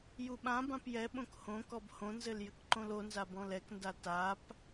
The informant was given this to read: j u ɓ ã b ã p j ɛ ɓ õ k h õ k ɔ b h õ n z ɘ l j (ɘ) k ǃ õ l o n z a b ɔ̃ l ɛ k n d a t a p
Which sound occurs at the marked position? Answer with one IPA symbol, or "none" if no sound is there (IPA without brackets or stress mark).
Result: ɘ